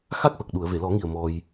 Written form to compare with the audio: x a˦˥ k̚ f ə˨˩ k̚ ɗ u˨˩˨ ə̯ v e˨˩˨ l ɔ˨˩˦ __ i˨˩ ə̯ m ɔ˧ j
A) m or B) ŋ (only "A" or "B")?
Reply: B